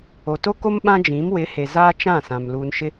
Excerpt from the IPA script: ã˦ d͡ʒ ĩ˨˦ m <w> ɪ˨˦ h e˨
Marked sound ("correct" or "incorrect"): correct